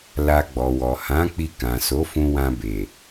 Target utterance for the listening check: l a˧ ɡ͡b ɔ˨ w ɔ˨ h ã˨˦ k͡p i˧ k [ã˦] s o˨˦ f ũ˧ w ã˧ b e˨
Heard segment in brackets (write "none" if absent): ã˨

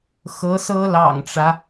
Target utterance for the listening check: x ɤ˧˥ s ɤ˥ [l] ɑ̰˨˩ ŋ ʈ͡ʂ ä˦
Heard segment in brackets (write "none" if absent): l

